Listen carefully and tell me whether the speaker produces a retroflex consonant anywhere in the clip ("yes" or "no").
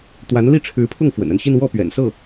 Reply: yes